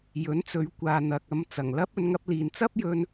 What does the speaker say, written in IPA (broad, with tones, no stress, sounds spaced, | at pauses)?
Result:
j ɵ˨˥ n t͡s ɵ˨˧ ɥ kʷ aː˨ n̪ ɐ˨ k̚ ɐ˧ m t͡s ɐ˨˩ ŋ l ɐ˥ p̚ ɵ˧ n ŋ ɐ˧ p̚ l iː˨ n t͡s ɐ˥ p̚ j ɵ˧ n